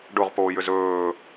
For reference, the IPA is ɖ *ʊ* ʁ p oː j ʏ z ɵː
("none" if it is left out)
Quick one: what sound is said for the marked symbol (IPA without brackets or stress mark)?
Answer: ʊ